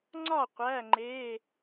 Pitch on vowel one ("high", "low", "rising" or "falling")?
falling